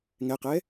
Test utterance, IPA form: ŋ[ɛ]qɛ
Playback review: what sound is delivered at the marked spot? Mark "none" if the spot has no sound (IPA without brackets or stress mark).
ɛ